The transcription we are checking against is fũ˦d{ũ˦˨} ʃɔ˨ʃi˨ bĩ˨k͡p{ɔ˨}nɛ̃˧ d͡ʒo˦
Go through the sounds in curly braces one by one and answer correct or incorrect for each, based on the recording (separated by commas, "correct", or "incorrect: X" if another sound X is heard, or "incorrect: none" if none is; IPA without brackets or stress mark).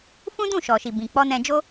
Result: correct, incorrect: ɔ˧